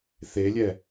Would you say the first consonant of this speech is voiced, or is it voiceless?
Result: voiceless